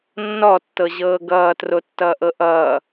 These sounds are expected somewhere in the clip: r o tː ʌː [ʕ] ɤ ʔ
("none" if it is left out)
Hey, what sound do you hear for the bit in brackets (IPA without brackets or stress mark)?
ʔ